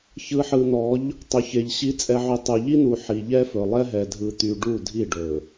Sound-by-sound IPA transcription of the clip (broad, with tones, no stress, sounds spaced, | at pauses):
ç ɯ˨ ħ ɯ˨ n̪ ɔ˨˦ ʎ | tˤ ɵ˨ ç e˨ ʎ ɕ i˨˦ t͡sʼ ɛ˨ ʕ y˨ tˤ u˨ ʎ i˦ n̪ u˨ ħ i˨ ʎ ɛ˦ f ɵ˨ lˠ ɛ˦ ɦ ɛ˨ dʱ ɯ˨ t̪ y˨ ɖ u˦˨ dʱ i˦˨ ɖ ɵ˨